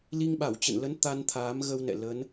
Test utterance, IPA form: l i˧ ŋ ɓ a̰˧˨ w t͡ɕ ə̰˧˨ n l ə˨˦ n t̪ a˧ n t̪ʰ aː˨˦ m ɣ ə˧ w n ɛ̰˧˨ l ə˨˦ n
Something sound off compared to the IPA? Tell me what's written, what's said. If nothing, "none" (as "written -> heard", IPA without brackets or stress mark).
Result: a̰˧˨ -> a˧˩